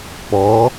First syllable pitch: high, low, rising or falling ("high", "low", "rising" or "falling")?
rising